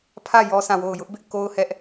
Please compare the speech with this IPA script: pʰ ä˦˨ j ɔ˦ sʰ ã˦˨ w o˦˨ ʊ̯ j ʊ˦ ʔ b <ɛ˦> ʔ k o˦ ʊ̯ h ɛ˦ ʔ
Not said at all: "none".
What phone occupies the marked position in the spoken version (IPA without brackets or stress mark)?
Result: ɪ˦